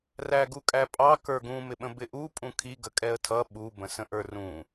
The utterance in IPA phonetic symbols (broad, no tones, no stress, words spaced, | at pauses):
ræɡukʼæpʼɑ kə˞ɡũ mɪɓə̃bɪʔu pʼũkʰi ɡəkʼɛə̯tʰʌ ɓu bə̃sə̃ʔə˞rũ